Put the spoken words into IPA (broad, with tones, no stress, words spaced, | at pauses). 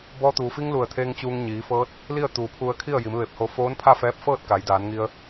bɔː˧t̪uː˩ fi˧ŋ lu˧˩ə̯t̪ʰe˧ŋ t͡ɕuː˧ŋɲiː˩˧fɤː˧˥t̚ | li˥˨ə̯t̪uː˩˧pʰu˧ə̯ kʰi˥˨ə̯ji˩˧mʋe˧˩p̚ho˧ foː˧˥npʰa˥˨fɛː˧p̚fɤː˥˨t̚ ka˩˧jdaː˩˧nŋi˧ə̯